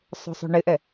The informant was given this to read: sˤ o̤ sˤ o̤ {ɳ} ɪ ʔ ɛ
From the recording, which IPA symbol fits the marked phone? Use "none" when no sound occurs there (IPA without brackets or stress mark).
ɳ